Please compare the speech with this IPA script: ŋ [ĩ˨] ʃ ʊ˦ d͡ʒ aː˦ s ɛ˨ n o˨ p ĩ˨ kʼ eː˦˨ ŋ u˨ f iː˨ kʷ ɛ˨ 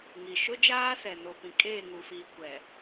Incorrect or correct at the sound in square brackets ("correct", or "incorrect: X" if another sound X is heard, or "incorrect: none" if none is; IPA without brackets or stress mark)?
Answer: incorrect: i˨